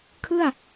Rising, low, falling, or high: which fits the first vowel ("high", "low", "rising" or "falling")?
falling